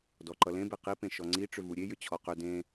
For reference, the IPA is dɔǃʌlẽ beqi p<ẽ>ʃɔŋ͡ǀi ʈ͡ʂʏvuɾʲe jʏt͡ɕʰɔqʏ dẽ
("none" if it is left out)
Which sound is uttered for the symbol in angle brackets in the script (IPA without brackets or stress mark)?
ẽ